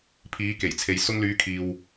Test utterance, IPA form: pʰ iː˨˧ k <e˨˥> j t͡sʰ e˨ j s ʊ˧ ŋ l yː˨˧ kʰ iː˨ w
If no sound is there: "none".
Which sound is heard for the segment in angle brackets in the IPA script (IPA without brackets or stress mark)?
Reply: e˨˩